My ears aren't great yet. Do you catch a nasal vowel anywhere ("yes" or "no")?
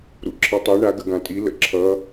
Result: yes